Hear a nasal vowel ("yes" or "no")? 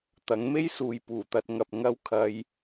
no